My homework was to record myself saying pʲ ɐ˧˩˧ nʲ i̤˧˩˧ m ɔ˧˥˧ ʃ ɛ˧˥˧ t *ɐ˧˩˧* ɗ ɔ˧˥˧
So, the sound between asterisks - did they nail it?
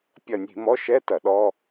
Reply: yes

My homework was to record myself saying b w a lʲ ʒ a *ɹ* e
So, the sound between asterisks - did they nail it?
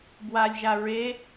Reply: yes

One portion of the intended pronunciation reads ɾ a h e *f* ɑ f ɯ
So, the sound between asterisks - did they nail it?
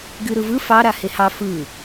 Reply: no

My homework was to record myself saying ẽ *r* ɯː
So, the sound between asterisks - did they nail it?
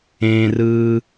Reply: yes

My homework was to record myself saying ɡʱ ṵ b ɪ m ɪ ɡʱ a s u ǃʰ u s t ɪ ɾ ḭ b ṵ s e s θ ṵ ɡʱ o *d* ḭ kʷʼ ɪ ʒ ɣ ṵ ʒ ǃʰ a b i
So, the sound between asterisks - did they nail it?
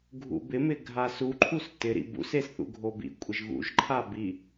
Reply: no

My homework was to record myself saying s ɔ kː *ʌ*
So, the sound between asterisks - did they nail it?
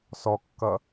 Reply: yes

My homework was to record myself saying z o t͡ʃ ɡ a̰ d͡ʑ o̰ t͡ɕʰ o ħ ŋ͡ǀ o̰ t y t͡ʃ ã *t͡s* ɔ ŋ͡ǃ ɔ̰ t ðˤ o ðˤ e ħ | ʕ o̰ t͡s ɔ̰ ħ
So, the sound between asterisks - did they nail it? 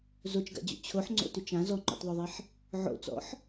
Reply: no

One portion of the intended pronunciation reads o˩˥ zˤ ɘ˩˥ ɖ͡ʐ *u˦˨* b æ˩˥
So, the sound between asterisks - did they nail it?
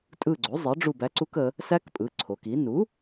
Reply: yes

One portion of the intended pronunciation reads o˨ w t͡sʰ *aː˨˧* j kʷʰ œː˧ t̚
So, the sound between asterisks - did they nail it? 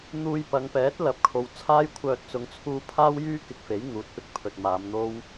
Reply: no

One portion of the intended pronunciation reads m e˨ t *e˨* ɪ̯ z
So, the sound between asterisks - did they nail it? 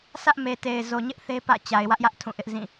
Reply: yes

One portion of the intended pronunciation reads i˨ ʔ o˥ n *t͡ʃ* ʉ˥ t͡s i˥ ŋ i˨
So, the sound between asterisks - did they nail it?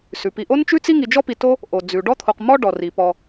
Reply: yes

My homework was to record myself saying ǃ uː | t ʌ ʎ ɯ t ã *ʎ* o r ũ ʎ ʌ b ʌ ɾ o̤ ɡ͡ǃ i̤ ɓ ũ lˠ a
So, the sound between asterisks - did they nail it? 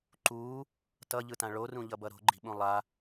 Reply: no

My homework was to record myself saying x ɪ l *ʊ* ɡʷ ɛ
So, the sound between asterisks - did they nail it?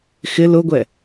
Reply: yes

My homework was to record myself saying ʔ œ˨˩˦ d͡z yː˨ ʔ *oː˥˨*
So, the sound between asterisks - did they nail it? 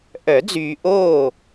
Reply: yes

